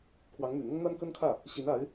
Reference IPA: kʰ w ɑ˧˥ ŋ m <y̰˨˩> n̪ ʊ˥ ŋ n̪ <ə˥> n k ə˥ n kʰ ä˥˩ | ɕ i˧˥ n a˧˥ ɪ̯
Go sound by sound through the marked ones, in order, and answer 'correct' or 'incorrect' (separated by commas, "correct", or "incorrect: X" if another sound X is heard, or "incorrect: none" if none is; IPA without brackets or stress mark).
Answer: correct, incorrect: a˥